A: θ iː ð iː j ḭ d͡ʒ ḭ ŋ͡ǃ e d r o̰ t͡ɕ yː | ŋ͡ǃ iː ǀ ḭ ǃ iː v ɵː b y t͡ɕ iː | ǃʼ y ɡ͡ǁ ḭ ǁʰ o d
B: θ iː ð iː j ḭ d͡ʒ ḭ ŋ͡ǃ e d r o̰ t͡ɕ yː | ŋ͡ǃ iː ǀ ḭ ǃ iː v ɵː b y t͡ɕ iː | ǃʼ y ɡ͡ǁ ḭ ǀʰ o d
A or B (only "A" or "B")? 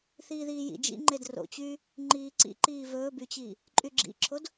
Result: A